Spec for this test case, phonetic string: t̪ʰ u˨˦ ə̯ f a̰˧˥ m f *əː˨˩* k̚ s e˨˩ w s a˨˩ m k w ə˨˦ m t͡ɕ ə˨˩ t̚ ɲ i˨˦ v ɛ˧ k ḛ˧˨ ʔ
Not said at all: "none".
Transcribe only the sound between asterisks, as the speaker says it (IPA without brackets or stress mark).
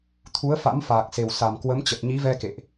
aː˨˩